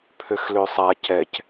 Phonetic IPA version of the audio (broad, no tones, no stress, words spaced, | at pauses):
pʰøxløsˤa cɛc